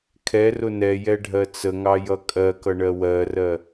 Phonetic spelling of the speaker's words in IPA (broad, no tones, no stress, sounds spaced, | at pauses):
kʰ ɛ r ʊ n ɛ j ɛ ɖʱ ɜ t͡s ə ŋ ɑ j ʌ kʼ ɜ k ʌ ɳ ɜ w ɜ r ɜ